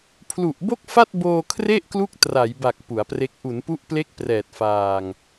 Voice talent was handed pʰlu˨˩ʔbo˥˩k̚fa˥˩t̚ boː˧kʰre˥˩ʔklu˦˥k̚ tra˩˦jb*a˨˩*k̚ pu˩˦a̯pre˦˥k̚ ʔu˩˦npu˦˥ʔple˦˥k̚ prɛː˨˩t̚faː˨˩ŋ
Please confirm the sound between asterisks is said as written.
yes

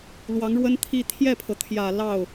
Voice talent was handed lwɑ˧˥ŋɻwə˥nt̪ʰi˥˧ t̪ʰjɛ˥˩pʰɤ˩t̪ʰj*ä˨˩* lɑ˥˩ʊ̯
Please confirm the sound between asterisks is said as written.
yes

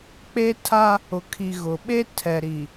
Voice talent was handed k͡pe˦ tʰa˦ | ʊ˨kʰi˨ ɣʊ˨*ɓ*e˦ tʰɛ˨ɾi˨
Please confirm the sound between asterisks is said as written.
yes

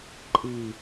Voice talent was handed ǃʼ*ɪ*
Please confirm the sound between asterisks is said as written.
no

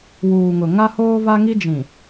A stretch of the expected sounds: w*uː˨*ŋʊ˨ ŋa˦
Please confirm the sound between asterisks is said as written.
yes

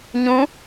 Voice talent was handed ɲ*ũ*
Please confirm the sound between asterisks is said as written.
yes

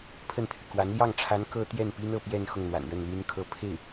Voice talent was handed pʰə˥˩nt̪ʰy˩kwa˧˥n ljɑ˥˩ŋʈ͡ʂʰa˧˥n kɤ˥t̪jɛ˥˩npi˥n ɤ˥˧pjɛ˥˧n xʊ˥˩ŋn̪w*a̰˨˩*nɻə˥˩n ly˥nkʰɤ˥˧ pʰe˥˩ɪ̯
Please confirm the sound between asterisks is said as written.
yes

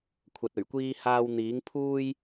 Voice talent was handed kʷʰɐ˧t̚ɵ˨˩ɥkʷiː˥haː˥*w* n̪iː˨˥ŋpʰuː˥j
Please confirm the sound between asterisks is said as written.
yes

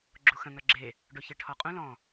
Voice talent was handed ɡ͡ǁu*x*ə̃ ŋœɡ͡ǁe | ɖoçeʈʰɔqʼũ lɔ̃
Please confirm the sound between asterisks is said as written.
yes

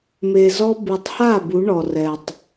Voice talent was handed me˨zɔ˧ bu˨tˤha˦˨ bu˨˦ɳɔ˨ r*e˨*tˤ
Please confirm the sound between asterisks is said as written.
no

